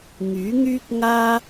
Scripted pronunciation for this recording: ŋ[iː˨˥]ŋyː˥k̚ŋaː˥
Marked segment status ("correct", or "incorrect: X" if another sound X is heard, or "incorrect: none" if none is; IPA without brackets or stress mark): incorrect: yː˨˥